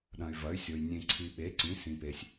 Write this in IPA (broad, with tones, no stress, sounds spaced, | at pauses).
ɗ ɐ̃˨ y̯ v ɐ˩˥ y̯ sʲ o˨ j nʲ ẽ˨ ǀʰ i˨ ɓ e˩˥ ǀ ĩ˩˥ s ĩ˨ p e˨ sʲ